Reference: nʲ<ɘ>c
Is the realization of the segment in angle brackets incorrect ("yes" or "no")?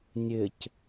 no